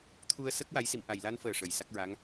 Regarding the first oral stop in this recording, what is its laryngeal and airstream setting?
aspirated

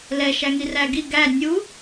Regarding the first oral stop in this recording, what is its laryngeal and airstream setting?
plain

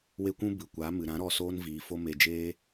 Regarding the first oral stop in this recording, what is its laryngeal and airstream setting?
plain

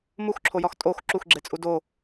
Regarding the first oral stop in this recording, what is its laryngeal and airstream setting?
click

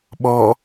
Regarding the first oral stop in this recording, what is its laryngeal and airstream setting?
implosive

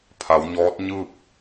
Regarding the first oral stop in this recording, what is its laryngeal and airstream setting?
aspirated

